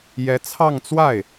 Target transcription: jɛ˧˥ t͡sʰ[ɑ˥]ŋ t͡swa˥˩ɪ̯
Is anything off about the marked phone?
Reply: yes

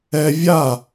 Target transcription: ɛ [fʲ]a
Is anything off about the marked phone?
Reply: yes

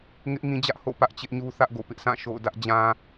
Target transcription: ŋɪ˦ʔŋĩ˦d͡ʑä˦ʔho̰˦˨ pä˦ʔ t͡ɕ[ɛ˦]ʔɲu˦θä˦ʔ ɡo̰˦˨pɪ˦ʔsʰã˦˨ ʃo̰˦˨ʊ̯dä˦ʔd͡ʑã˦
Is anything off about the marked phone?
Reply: yes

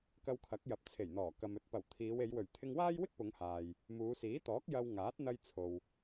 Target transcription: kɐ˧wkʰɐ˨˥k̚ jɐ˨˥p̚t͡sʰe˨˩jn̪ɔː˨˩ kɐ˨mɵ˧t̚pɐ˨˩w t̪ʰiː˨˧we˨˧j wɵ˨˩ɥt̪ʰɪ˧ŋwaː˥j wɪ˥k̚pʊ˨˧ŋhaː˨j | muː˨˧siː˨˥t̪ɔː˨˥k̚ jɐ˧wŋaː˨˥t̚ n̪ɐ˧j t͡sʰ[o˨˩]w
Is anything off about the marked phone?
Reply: yes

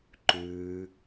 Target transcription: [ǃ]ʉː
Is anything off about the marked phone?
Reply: no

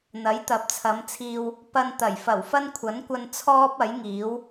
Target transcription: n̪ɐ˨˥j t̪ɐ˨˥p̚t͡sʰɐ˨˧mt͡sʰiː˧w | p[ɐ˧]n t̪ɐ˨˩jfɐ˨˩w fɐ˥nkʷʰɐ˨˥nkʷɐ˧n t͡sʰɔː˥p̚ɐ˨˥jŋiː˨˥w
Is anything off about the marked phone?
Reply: no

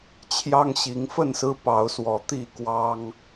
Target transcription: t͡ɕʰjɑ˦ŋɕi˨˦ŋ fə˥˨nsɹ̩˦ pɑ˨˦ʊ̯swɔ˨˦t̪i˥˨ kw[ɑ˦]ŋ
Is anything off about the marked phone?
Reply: no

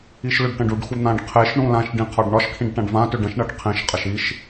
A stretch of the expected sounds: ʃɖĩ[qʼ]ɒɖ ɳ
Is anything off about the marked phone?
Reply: yes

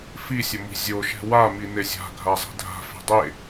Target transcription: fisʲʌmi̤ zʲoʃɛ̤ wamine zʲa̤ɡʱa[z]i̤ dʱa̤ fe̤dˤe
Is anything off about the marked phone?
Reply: yes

